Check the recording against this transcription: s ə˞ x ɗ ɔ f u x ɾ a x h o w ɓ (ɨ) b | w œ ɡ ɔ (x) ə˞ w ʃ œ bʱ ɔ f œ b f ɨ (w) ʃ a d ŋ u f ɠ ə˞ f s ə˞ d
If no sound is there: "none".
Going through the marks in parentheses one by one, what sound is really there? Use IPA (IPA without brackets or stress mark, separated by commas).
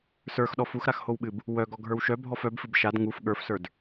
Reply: ɨ, ɡʱ, b